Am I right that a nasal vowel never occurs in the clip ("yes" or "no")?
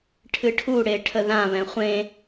no